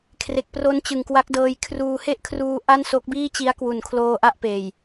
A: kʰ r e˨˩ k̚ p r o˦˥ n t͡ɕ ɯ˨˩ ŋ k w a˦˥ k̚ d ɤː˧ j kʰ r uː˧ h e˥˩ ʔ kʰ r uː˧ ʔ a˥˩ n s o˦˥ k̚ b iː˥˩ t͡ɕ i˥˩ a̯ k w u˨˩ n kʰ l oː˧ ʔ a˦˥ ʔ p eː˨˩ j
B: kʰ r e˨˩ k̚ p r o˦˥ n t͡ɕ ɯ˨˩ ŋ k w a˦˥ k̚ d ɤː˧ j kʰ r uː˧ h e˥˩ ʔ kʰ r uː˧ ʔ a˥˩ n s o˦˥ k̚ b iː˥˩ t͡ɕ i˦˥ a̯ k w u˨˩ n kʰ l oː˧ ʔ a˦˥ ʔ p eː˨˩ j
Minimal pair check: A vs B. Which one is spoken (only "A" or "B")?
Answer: B